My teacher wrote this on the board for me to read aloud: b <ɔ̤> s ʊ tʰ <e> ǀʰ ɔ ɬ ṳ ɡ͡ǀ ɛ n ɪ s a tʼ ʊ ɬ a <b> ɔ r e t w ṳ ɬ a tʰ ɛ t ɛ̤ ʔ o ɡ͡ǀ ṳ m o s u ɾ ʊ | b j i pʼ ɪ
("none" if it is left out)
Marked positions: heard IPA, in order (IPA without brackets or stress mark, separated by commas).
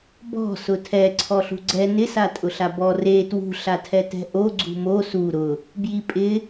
ɔ̤, ɛ, b